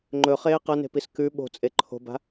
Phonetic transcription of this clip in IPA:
ŋ͡ǃ ɵ χ eː q ɐ n e̤ p i s k ʉ ɓ o̤ t͡sʼ e ǃʰ o̤ b a̤

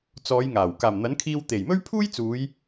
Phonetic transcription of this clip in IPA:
t͡s ɔː˨˧ j ŋ aː˨˩ w k aː˨˩ m n̪ ɐ˨˥ n kʰ iː˧ w t̪ e˨˩ j m ɵ˥ ɥ pʰ uː˥ j t͡s uː˨˧ j

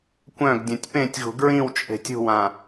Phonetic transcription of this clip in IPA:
kʷ œ̃ ɡ dʲ œ̃ tʲ p ẽ tʲ ɣ ṳ ɡ ɹ ĩ w t͡ʃʼ e̤ tʲ ṳ w ã

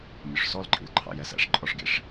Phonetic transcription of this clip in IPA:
mʲ ʊ ʂ s ɔ l ǃʼ ḭ l ǃʰ ɑ̰ j ɛ s æ̰ ʂ ǃʼ ɔ ʂ ɡ ḭ ʂ

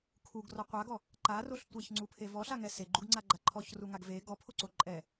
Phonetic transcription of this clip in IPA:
kʰ u ɡ r ɔ qʷ a ɡ ɔ | ǃ a r o ɬ tʷ ɛ ç ŋ͡ǀ u pʰ e v ɔ ɬ a ŋ ɛ s e ɡ͡ǃ u ɡ ŋ͡ǀ a ɡ͡ǃ a ǃʰ ɔ ç r u ŋ a ɡ v e ɡ ɔ pʰ o ǀ o ǃʼ ɛ

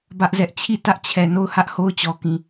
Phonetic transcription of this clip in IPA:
b ä˦ ʔ z ɛ˦ ʔ t͡ɕʰ i˦˨ t ä˦ ʔ t͡ɕʰ ɛ˨ n o˦˨ ʊ̯ h ä˦ ʔ h o˦ ʊ̯ t͡ɕ ɔ˨ k ĩ˨

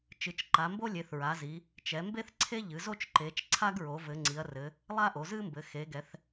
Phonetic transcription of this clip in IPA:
t͡ʃ ɨ˩˧ t͡ʃ ǃ a˩˧ m b o˥ lʲ e˩˧ θ ɹ a˩˧ z i˩˧ | t͡ʃ ɛ˩˧ m b e˥ θ ǀʰ e˥ ʎ ɨ˩˧ z o˥ t͡ʃ ǃ e˩˧ t͡ʃ ǀʰ a˥ ɡ ɹ o˩˧ v ɘ˩˧ ŋ͡ǀ i˩˧ ɐ̯ r ɘ˩˧ | lˠ a˥ ʔ o˩˧ z ɨ˥ m b ɘ˩˧ x e˩˧ ɡ ɛ˩˧ θ

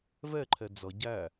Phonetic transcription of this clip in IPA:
v ɛ ǃʰ ɛ d͡z ʌ ɟ æ

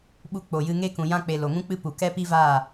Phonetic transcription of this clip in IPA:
ɓ u˧ k͡p o˨ j ɨ˧ ŋ e˦ k ũ˨ j ã˧ k͡p e˨ l o˨ ŋ ũ˦ k͡p ɨ˦ p u˨ k ɛ˦ p i˦ v aː˦˨

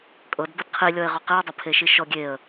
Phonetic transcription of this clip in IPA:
kʼ ɤ d b ɤ d qʰ i lʲ ɔ ɪ̯ ʁ ɔ q i ə̯ dˤ ɘ pʰ e ʃ i ʃ ɔ ɡʲ e ə̯

